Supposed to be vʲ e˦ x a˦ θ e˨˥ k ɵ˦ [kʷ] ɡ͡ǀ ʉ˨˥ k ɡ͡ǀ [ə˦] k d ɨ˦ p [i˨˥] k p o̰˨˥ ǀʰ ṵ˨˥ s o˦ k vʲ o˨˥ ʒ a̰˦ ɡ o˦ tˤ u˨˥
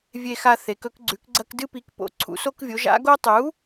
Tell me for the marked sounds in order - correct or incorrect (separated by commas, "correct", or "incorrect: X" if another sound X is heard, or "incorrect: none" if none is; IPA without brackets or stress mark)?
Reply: incorrect: k, incorrect: ɐ˦, correct